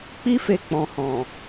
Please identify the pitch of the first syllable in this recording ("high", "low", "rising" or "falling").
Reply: high